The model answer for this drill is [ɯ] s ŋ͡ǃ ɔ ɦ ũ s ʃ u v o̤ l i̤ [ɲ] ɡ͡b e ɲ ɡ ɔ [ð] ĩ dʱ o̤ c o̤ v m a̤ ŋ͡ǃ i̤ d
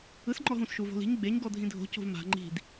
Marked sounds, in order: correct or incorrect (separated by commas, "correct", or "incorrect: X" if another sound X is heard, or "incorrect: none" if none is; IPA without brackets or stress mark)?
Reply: correct, correct, incorrect: dʱ